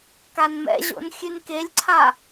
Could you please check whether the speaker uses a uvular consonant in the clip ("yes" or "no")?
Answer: no